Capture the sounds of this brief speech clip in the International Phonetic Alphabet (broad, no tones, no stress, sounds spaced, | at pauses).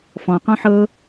f ɔ̃ q ɔ̃ ħ ɤ